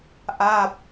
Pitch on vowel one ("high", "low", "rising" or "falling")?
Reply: falling